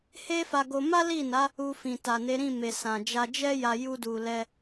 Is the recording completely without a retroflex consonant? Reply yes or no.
yes